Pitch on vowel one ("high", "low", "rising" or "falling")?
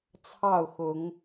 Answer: falling